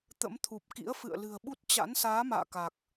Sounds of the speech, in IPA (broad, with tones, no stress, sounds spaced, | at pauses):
t̪ ə̰˧˥ m t̪ʰ u˨˩ p̚ k ḭ˧˥ ə̯ f ɨ̰˧˨ ə̯ l ɨ̤˨˩ ə̯ ɓ u˦˥ t̚ t͡ɕ a̰˧˥ n s aː˨˦ m a̰ː˧˨ k a˨˩ k̚